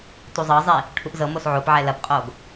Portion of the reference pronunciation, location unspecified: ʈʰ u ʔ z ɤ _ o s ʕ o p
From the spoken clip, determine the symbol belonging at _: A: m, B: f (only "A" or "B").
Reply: A